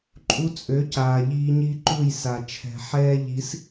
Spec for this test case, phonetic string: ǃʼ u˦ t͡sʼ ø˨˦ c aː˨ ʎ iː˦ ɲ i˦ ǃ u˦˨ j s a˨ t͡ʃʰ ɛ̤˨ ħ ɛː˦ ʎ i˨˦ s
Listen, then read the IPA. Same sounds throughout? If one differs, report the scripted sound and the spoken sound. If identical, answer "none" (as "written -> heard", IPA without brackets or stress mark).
none